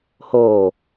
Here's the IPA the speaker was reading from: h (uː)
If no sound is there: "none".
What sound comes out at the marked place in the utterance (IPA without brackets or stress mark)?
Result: oː